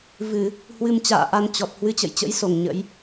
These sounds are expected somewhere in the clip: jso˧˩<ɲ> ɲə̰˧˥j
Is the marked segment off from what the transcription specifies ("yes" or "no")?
yes